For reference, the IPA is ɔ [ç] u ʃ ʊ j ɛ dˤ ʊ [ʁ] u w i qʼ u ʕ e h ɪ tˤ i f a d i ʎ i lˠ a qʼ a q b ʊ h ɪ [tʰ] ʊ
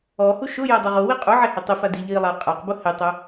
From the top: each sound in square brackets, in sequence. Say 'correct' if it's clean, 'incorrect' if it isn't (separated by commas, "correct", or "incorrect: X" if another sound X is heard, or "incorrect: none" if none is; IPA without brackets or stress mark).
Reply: incorrect: h, correct, incorrect: tˤ